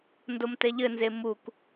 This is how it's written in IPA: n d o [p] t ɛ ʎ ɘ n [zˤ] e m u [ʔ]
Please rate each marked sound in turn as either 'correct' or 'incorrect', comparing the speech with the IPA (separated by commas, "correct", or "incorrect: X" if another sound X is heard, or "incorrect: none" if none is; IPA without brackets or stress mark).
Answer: incorrect: m, incorrect: z, incorrect: k